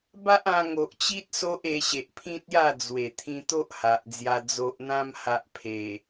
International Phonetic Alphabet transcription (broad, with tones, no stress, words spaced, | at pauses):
ba˦ʔã˧ ŋo˨ʔt͡ɕi˦t̚ so˦ʔe˧ɕe˨ʔpʰĩ˦t̚ ja˥˧d͡zwe˨˩ t̪ʰĩ˧t̪o˦ʔ ha˨ʔd͡zja˧ d͡zo˨ʔn̪ã˧mha˨ʔ pʰe˨˩